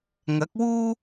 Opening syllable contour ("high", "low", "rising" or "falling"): rising